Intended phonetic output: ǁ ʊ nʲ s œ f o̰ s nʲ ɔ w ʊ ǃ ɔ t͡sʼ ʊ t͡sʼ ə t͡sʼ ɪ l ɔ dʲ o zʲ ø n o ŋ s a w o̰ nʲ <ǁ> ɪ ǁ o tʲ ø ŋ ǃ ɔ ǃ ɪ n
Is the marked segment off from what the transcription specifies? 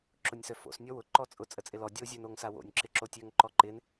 no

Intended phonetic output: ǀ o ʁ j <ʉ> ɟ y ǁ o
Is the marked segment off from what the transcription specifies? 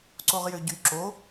yes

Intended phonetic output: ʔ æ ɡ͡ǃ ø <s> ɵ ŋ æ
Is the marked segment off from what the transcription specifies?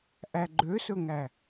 no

